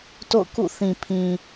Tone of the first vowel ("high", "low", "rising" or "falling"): falling